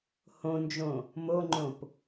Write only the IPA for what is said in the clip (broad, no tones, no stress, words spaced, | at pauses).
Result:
hõnd͡ʒõ | moŋ͡ǃõp